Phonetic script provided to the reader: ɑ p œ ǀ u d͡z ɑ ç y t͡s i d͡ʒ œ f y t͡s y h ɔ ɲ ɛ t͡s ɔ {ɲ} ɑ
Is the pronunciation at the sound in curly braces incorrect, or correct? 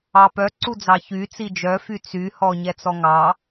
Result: incorrect